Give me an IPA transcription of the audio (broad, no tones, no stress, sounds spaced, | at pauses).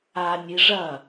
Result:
a nʲ i ʐ ɐ